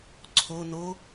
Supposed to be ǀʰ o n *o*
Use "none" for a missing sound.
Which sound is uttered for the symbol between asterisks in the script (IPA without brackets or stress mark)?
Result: o